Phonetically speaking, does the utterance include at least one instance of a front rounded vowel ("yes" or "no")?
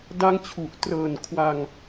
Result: no